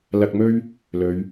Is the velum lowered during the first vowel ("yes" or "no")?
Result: no